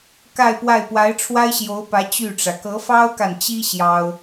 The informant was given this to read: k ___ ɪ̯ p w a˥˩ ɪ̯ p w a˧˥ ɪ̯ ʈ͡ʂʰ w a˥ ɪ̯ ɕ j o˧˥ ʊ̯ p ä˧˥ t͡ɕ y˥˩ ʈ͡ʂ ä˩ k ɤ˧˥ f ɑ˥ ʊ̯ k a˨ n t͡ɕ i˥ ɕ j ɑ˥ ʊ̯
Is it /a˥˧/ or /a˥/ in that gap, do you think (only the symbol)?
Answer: a˥˧